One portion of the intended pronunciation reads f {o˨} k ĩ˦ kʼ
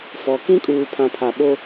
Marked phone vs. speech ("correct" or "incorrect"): incorrect